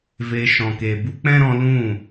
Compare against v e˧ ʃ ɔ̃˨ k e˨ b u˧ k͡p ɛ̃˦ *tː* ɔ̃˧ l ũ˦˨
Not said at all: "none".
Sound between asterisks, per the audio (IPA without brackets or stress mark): ɾ